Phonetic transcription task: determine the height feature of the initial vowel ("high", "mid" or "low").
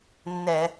mid